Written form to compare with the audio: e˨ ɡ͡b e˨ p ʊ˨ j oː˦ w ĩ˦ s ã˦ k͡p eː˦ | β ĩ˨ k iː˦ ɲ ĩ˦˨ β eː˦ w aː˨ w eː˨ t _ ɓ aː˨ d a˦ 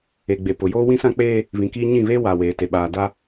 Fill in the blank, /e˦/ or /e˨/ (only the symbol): e˨